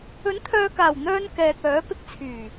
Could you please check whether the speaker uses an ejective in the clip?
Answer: no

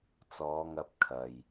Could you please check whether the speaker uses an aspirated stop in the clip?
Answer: yes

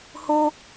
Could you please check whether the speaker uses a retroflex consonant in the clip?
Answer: no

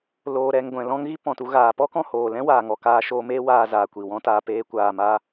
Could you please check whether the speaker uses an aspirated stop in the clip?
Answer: no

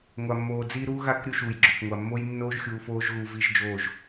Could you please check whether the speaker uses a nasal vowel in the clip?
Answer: no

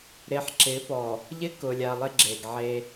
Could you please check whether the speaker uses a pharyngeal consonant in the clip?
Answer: yes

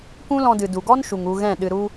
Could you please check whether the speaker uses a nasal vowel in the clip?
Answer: yes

